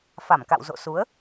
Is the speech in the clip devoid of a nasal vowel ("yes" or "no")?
yes